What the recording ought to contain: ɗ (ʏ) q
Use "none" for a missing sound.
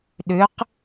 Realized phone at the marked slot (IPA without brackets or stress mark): ʏ